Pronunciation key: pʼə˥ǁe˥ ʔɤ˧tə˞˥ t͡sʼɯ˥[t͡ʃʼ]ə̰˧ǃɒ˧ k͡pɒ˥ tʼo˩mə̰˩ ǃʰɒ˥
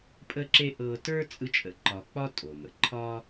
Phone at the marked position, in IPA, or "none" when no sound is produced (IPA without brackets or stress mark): t͡ʃʼ